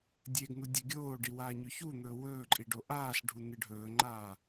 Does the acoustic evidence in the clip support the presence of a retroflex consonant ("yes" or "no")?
yes